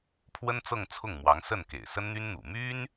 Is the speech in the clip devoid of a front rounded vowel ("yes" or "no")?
no